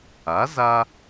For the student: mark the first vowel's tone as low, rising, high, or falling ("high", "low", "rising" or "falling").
rising